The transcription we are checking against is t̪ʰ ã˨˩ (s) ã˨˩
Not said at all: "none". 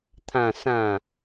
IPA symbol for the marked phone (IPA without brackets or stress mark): s